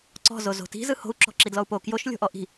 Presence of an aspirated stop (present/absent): absent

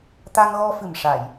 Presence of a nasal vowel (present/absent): absent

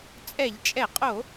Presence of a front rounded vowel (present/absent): absent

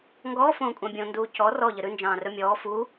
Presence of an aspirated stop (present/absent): absent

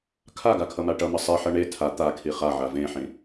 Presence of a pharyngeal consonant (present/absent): present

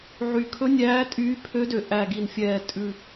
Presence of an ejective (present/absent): present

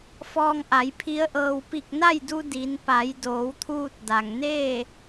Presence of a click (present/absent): absent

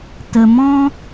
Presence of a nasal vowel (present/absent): present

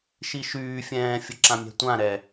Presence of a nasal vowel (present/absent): present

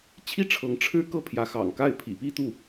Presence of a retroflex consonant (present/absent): present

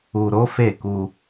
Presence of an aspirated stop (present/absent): absent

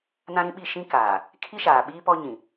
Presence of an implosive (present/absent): present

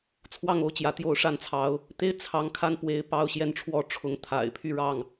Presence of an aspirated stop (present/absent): present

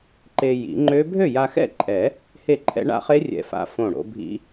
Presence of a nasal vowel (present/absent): present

